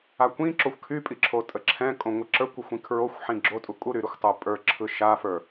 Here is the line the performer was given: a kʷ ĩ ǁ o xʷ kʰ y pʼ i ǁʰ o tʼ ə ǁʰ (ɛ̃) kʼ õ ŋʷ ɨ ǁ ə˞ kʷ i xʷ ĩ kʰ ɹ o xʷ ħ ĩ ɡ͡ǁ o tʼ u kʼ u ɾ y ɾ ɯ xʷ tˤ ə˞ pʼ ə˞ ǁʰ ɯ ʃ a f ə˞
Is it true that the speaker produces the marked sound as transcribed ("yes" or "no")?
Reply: yes